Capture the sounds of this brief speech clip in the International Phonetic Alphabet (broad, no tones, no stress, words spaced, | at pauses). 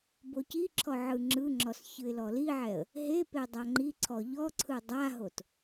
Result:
bociǁʰɔ ʕɯŋ͡ǁɯŋ͡ǁɔs çɯɪ̯lɔliʕɛə̯ | ɦepe dˤaŋ͡ǃiǀʰɔ ʎɔǀʰɯ dˤaɦot